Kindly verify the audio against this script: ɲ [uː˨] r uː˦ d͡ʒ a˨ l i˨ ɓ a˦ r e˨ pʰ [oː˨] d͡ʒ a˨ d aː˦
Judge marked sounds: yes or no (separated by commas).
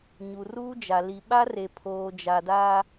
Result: no, yes